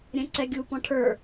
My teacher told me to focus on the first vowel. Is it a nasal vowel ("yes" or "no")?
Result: yes